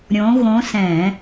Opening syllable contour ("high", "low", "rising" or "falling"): rising